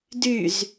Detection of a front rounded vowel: present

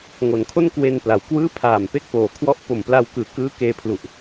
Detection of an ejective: absent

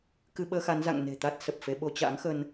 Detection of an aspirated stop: absent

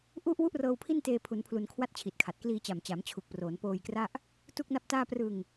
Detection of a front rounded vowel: absent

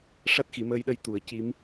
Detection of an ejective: absent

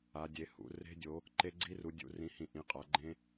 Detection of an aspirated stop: absent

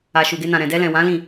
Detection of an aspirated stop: absent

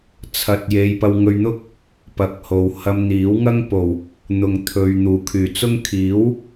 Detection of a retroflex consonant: absent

